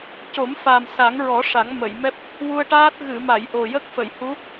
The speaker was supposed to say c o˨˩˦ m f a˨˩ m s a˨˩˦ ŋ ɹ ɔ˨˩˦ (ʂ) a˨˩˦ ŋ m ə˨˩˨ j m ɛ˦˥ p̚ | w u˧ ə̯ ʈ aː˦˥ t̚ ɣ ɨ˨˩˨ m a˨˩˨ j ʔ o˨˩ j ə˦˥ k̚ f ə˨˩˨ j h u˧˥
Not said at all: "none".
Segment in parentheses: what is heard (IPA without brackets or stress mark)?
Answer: ʂ